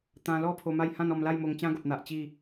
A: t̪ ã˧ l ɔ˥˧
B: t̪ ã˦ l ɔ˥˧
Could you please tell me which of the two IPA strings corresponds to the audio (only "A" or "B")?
A